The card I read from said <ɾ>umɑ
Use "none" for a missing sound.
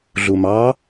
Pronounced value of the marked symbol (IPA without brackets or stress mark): ɮ